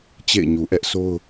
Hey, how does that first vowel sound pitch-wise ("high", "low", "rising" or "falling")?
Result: falling